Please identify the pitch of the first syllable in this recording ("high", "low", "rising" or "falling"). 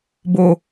low